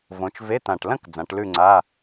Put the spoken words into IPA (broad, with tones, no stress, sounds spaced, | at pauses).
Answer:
v õ˩˧ t͡ʃ v e˧˥˧ t̪ ã˨˩ ʈ l ɐ̃˥˧ k d͡z ã˩˧ ʈ l ʉ˥˧ ŋ͡ǀ a˧˥˧